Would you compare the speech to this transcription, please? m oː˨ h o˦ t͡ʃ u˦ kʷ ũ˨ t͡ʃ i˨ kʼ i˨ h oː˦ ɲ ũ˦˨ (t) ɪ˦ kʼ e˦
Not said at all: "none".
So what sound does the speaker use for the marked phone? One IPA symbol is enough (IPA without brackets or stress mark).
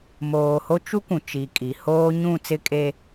t͡s